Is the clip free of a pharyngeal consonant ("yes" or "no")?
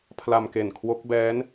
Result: yes